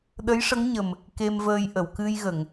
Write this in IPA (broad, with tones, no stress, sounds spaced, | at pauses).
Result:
ɗ ə˧˥ j ʂ ə˧˥ ŋ ɲ ə˨˩ m | k e˧ m v əː˧ j ʔ ə˨˩˨ w k ɨ˧ j ɣ ə˨˩˨ ŋ